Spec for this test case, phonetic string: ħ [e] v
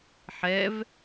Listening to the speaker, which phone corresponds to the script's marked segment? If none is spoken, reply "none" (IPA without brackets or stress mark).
ɛ